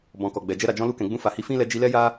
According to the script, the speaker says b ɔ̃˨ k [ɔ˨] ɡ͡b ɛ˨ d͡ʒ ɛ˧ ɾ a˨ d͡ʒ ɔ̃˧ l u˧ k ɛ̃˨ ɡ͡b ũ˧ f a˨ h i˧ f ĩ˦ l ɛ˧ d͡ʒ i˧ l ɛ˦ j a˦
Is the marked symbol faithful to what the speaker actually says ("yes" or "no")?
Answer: yes